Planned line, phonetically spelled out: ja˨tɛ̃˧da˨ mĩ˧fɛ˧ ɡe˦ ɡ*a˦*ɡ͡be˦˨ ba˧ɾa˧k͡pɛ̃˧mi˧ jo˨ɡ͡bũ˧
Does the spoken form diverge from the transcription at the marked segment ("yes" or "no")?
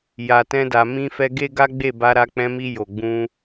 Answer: no